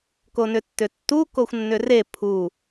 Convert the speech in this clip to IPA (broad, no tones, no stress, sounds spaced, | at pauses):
k o n ʏ tː ʏ tː u k o xʷ nː ʏ r e pʰ u